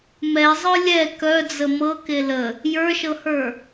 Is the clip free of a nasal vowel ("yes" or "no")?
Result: yes